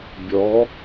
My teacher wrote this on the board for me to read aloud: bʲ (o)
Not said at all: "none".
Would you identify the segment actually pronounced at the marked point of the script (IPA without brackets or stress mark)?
ɔ